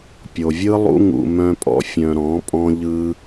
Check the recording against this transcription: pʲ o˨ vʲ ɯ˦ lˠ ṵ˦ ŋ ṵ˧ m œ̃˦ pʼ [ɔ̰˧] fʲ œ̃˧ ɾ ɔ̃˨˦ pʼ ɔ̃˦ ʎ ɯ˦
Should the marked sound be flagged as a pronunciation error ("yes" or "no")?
yes